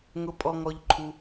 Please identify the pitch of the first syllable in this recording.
low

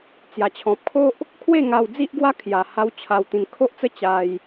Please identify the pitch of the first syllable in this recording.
low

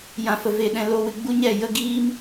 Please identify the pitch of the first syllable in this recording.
low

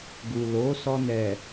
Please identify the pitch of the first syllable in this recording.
low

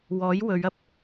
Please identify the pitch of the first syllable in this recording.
rising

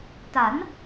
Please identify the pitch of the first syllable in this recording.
rising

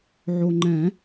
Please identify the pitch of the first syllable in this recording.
low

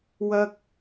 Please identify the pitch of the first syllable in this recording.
high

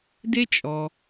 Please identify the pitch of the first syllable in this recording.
high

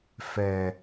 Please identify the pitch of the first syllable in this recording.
low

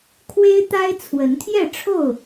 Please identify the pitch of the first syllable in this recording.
high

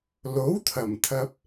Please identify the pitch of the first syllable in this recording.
rising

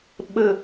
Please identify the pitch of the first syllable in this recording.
low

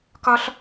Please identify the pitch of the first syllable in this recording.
high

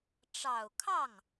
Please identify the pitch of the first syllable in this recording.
low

